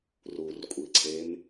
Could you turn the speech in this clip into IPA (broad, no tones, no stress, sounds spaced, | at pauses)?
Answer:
r u r kʷʼ i ǀʰ e m